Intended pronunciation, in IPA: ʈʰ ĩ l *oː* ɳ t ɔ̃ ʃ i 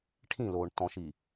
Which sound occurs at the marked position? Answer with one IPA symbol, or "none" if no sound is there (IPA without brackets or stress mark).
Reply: oː